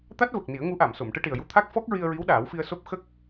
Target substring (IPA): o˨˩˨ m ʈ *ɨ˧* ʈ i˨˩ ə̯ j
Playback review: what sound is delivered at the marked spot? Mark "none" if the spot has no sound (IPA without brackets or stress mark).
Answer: ɨ˧